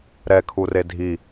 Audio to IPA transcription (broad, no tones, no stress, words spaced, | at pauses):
ɾɛkʰure dʱi